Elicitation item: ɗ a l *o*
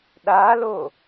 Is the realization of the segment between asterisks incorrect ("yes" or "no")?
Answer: no